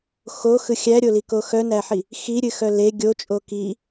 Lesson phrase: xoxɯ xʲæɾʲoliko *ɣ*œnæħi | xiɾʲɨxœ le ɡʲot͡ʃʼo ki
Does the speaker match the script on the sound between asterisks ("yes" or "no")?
no